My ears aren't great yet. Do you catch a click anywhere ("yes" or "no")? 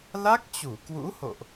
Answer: no